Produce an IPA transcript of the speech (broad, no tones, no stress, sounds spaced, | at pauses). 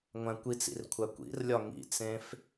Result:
ŋʷ æ̃ kʷ i t͡s ḭ r kʷʰ æ kʷ ḭ r lʲ ɒ ŋ ḭ t͡s ẽ f